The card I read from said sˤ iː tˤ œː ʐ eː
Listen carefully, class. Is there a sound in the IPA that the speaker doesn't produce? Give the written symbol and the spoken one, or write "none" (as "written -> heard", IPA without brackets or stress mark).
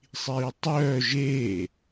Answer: ʐ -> ʒ